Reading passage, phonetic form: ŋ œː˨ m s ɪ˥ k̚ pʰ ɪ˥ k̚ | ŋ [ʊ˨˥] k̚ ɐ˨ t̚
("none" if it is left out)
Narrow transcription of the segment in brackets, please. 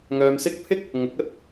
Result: ʊ˨˥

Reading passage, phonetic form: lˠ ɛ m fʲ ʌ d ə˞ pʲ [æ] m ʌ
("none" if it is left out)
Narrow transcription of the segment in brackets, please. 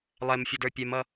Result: ɛ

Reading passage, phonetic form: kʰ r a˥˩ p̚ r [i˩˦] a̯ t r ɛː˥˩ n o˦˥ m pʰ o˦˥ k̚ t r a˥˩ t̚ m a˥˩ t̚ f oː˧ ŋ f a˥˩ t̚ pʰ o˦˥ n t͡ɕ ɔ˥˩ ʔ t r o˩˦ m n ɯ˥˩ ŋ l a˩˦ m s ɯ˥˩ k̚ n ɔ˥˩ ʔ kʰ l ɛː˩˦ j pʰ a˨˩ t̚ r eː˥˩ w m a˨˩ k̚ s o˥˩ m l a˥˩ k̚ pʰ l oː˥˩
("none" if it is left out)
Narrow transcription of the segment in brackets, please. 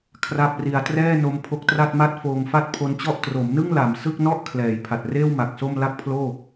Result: i˧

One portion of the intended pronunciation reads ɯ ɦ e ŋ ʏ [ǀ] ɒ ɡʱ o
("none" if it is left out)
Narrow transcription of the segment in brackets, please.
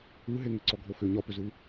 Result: ǀ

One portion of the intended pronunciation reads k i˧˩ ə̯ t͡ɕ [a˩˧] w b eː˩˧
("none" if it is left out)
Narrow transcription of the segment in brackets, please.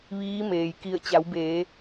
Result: a˩˧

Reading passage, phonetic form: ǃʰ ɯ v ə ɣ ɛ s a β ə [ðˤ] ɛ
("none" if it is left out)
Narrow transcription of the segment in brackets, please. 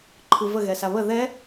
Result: ð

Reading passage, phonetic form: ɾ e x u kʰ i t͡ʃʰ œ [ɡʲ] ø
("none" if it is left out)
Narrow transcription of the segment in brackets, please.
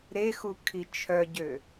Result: ɟ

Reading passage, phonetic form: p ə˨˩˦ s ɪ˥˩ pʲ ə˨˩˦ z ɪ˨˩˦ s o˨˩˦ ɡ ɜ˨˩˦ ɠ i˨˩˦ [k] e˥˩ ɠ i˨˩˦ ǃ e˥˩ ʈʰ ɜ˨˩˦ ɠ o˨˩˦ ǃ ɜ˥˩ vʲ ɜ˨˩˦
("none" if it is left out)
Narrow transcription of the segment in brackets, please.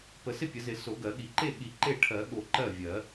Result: ǃ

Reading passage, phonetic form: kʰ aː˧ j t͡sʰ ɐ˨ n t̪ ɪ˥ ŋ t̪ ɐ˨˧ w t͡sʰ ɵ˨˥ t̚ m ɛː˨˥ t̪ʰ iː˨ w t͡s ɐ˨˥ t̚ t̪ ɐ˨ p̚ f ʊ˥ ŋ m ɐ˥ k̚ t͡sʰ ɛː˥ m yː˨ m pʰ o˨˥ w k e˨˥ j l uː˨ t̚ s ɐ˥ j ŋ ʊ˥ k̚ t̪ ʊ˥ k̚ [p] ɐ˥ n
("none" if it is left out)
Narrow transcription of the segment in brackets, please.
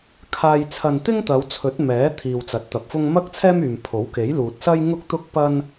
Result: p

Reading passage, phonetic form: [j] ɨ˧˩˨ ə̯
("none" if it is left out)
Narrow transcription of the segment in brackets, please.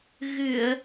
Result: ɣ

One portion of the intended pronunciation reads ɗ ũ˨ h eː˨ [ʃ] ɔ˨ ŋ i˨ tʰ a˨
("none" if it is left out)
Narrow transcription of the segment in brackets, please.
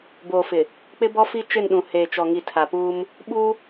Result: t͡ʃ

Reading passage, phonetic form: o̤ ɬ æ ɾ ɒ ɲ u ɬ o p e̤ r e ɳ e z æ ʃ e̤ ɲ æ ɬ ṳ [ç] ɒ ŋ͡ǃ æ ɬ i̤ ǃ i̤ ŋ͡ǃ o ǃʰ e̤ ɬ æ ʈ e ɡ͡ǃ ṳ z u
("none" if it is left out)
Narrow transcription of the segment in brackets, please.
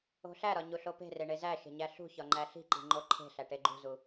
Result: ç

